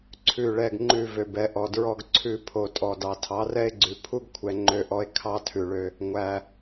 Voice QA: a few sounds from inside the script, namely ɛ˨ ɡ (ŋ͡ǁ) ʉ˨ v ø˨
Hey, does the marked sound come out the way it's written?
no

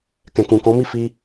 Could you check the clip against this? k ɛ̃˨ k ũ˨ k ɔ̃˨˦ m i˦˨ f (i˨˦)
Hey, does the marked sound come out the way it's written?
no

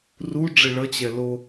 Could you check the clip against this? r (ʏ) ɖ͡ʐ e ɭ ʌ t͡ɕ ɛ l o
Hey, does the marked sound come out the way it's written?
no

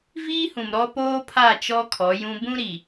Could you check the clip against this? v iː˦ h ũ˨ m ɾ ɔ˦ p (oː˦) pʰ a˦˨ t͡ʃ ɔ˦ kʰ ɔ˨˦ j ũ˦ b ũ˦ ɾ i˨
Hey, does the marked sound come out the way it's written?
yes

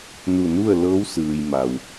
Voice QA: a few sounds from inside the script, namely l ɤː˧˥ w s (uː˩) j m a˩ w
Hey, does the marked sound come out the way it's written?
no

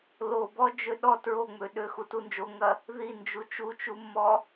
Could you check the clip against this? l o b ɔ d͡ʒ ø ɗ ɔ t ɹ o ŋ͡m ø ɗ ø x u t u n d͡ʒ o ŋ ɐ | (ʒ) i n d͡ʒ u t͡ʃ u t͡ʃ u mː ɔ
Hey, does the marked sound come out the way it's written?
no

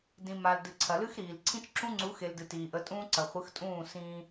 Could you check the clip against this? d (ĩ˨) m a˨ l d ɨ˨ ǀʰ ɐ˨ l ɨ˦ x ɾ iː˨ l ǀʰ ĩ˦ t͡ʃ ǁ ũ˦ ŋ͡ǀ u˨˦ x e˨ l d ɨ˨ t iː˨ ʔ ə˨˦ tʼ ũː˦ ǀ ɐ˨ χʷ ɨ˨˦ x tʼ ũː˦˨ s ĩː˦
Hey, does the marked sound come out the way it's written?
yes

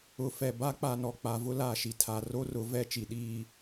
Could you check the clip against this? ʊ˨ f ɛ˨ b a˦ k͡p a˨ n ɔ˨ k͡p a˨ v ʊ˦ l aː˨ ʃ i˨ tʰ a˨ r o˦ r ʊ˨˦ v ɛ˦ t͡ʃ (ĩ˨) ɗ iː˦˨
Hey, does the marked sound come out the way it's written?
no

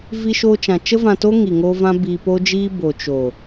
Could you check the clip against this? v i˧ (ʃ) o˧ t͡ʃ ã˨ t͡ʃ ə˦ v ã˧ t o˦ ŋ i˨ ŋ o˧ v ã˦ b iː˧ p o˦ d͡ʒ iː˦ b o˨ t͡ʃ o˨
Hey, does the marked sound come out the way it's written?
yes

